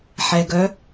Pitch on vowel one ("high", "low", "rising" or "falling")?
low